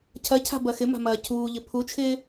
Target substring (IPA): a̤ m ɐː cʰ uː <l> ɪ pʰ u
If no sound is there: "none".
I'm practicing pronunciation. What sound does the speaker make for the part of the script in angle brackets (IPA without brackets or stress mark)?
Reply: ʎ